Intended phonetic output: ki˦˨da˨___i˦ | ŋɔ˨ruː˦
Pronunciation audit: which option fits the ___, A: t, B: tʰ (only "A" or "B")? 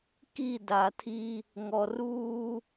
B